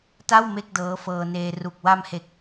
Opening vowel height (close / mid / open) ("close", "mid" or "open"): open